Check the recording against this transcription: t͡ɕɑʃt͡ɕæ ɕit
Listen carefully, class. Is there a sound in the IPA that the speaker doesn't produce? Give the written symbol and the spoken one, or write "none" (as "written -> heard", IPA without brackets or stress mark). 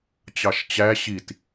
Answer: none